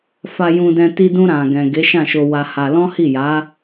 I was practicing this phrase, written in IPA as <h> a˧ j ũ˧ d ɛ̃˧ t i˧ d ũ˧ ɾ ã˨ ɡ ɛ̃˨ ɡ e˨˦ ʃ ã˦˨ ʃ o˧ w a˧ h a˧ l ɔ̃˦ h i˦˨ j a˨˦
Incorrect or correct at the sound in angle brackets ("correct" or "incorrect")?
incorrect